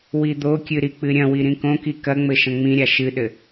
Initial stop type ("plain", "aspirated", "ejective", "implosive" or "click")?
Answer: plain